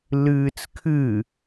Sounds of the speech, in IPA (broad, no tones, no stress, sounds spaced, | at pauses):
l ɨː t͡s kʰ ɨ